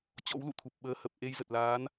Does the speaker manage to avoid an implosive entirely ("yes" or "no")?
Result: no